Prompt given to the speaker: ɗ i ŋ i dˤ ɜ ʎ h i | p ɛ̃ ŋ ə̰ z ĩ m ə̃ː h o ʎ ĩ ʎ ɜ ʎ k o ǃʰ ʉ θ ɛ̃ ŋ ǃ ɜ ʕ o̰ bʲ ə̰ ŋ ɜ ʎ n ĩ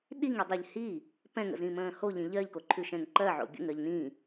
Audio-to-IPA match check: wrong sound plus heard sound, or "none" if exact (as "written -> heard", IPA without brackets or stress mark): θ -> ʃ